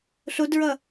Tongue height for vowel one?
mid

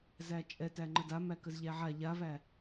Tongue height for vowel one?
low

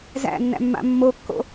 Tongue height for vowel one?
low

